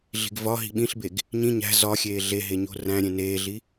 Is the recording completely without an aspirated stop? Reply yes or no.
yes